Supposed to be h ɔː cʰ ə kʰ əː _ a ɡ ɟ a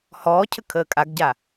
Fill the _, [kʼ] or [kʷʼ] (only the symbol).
kʼ